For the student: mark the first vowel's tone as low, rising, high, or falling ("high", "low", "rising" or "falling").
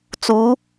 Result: rising